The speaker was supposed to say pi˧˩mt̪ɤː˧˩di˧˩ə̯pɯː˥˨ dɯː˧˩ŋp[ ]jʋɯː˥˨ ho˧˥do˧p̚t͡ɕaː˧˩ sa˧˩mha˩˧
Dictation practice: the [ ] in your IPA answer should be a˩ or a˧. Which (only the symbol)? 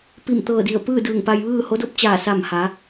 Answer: a˧